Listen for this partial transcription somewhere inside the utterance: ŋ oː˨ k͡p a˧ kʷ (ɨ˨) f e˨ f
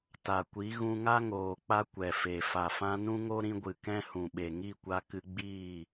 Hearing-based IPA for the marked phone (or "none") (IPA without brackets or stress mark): ɛ˨